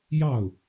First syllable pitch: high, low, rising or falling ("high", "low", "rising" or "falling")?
falling